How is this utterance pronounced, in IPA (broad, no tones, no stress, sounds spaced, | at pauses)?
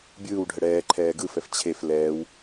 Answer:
bʲ ɯː w ɖʱ ə ɽ ɛː ǃʰ ɛː ɡ ɯ f ɛ f t͡ɕʰ e f l ɛː w